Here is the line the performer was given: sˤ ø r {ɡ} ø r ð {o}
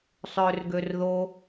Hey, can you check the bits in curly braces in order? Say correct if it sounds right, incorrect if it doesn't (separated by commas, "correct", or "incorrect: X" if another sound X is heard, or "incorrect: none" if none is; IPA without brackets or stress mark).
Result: correct, correct